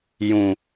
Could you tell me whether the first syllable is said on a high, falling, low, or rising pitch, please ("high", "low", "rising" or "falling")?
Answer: low